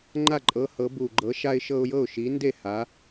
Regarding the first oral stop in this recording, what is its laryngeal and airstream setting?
click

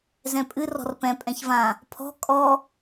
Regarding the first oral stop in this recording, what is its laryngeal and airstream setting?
ejective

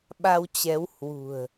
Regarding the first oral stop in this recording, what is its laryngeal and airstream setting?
implosive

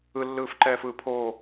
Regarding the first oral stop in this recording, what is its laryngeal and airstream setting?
click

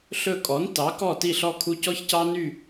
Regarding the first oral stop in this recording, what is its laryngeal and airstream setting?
ejective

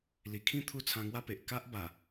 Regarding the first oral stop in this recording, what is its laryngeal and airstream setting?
aspirated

